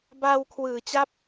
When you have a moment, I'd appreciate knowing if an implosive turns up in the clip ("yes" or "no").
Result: no